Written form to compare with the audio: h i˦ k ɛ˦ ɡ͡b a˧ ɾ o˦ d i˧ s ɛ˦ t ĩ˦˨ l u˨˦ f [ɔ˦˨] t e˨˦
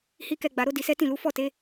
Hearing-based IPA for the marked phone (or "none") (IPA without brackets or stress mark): ɔ˦˨